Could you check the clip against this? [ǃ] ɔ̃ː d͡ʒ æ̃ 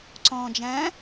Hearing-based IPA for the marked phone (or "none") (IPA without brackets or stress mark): ǀ